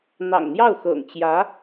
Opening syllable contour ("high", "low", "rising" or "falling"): low